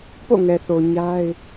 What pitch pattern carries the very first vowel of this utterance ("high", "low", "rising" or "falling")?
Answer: falling